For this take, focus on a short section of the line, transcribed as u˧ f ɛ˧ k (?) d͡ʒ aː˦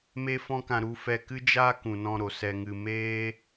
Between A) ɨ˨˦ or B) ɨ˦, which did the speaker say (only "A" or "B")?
B